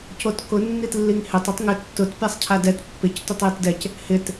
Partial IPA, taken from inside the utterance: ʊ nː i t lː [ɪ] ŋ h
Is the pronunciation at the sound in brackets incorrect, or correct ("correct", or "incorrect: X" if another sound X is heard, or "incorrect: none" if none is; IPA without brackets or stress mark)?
incorrect: i